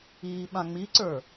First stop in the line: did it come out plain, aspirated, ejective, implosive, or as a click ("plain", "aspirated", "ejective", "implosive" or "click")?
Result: implosive